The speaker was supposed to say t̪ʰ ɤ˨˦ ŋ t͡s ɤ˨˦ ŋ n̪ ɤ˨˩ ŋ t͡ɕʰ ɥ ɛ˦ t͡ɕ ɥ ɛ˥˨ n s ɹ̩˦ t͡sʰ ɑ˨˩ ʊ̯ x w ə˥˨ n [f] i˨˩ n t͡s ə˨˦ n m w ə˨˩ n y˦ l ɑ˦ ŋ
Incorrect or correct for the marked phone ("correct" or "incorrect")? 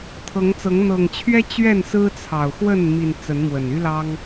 incorrect